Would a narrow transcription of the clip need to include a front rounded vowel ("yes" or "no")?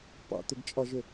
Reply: yes